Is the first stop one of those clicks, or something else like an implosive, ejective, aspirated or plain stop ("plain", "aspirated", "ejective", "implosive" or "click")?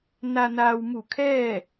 aspirated